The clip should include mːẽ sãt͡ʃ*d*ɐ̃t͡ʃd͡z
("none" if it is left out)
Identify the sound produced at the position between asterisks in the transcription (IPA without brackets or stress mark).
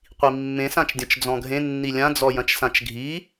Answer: dʲ